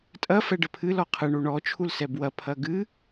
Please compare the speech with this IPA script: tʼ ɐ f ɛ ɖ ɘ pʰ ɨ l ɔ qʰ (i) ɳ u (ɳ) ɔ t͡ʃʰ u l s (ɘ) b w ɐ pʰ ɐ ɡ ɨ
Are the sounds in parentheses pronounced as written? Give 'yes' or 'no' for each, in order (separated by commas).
no, yes, no